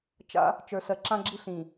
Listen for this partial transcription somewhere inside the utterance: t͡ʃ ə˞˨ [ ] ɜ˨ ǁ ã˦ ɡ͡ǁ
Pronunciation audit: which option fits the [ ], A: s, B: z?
A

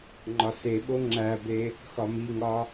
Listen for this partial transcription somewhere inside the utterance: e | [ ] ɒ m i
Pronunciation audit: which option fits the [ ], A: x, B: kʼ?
A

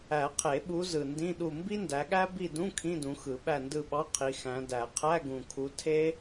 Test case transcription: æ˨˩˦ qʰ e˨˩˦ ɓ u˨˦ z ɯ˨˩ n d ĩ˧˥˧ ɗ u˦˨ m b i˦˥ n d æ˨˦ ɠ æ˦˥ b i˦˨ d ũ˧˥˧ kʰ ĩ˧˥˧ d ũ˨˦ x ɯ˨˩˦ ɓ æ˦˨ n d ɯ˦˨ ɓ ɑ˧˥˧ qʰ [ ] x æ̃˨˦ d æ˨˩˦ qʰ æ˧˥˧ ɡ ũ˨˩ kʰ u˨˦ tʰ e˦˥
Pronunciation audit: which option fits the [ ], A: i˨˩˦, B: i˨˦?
B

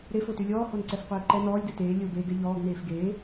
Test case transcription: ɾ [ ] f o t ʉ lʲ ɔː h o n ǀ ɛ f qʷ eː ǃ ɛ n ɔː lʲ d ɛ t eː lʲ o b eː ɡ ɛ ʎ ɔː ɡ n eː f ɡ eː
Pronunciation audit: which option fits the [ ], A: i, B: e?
B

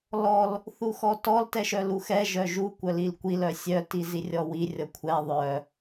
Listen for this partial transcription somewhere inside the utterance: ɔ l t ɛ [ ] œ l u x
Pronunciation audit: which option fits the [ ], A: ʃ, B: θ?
A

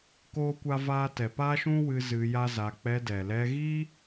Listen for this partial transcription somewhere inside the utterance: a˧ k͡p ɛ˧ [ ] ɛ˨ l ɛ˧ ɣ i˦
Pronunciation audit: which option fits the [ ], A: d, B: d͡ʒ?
A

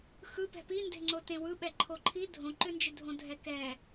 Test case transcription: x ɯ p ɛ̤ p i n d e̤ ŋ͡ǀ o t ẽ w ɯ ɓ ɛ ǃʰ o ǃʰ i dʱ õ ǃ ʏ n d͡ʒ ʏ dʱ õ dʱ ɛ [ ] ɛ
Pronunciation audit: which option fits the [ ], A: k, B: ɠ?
A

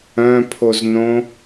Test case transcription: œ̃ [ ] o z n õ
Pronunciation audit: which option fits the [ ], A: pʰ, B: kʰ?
A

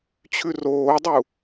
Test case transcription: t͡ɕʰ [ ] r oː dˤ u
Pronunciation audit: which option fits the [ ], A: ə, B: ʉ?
B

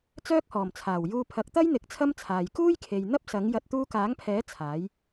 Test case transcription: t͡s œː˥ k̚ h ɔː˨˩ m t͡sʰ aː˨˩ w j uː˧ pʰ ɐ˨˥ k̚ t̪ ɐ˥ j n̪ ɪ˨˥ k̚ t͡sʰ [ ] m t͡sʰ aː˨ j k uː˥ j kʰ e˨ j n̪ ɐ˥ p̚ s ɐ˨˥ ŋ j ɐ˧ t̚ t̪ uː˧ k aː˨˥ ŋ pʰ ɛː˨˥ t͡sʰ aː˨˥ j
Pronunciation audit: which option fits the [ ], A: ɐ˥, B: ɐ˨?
A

